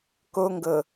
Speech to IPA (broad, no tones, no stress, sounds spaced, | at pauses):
k o ŋ ɡ ɤ